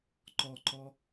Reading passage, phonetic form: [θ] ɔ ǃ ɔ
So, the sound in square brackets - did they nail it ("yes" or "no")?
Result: no